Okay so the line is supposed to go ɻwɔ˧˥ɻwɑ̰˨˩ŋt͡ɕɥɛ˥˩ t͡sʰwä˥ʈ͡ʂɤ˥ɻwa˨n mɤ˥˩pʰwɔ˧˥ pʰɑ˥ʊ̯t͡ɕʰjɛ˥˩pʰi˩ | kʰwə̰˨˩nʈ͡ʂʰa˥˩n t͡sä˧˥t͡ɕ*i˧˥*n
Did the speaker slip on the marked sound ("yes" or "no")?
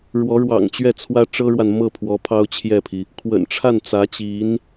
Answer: no